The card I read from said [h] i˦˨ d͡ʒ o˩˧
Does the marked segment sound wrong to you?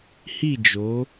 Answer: no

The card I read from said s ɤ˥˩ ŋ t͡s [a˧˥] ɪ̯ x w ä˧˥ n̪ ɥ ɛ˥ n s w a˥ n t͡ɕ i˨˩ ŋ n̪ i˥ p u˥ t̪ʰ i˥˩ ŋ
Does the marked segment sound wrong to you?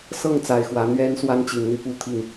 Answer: yes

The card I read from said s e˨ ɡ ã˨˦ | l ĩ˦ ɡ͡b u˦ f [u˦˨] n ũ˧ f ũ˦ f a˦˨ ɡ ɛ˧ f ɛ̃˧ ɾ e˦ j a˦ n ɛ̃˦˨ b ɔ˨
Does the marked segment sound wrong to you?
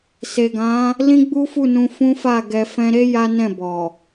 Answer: no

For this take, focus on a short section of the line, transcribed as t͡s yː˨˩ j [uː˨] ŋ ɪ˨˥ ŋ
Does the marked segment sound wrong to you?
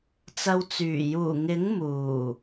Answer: yes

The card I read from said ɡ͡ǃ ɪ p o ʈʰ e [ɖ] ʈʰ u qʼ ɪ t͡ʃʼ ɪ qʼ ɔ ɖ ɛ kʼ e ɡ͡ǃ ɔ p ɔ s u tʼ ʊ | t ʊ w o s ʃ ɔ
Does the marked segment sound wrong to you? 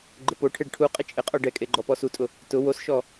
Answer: no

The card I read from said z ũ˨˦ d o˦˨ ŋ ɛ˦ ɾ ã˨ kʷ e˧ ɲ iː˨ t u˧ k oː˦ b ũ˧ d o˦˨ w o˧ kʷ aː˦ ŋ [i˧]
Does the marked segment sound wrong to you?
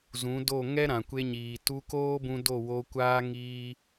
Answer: yes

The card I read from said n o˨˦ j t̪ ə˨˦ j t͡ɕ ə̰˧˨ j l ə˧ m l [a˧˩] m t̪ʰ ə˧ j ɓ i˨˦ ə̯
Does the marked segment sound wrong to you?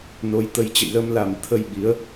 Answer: yes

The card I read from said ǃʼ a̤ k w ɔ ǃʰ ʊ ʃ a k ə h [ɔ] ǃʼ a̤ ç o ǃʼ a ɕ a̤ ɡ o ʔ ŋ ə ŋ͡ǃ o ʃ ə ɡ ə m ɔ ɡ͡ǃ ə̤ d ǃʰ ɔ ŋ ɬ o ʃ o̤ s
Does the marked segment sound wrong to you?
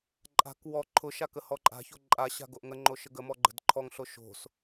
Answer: no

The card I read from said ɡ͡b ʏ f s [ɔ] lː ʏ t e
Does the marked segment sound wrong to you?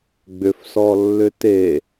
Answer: no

